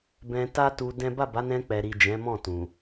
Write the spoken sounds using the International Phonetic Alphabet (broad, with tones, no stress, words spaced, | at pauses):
bɛ̃˧ta˦tu˧ dɛ̃˦ ba˦˨ba˨˦nɛ̃˧ k͡pɛ˨ɾi˨ d͡ʒɛ̃˨˦mɔ̃˦˨ tũ˨